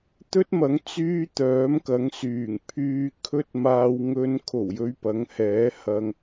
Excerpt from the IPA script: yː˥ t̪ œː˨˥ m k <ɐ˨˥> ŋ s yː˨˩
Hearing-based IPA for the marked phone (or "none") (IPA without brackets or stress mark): ɐ˨˥